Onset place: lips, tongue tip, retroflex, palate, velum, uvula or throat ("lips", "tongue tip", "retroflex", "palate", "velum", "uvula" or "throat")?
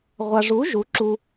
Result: uvula